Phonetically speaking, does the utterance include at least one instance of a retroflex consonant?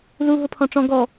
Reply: yes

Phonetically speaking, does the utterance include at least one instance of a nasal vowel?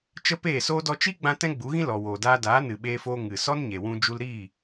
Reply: yes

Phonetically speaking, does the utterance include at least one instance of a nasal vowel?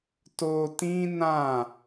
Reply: yes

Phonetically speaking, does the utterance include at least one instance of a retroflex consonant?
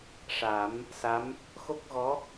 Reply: yes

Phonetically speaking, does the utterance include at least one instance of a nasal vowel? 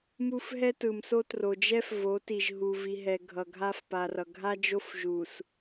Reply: no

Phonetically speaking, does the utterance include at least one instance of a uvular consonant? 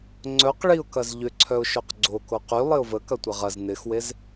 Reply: yes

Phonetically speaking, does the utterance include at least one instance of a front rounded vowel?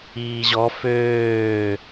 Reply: yes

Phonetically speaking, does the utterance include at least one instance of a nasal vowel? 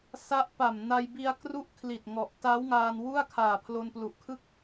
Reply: no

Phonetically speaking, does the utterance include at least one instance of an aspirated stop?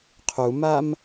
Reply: yes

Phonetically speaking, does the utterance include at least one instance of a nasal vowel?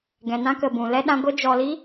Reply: yes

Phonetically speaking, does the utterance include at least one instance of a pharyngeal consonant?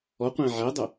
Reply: yes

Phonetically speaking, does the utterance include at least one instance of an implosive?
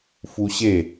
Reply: no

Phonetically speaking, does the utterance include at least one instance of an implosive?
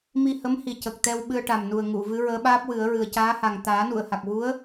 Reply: yes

